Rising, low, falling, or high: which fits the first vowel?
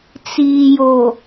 low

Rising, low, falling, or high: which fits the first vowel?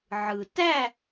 low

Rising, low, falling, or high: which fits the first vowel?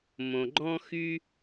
low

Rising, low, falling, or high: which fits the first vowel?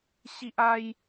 high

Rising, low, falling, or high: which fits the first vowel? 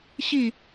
falling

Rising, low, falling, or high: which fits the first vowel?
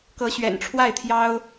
rising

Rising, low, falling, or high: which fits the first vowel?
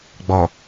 low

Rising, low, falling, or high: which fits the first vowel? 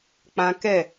high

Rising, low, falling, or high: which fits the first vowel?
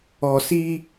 low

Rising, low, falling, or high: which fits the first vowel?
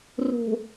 low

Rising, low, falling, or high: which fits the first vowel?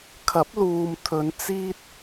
rising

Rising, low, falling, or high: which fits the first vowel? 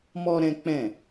high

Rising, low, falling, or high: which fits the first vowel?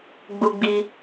high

